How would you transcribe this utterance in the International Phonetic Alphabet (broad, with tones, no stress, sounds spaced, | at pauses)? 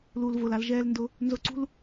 l uː˨ l v ʊː˨ l a˧ l ʒ ɛː˧ l n d ʊ˧ | n z ʊ˧ ǀ ṳ˦ l